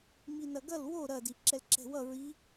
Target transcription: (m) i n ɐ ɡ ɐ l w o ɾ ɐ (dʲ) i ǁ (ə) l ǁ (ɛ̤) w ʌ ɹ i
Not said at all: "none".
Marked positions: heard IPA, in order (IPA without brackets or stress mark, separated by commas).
m, d, ɛ, ɛ̤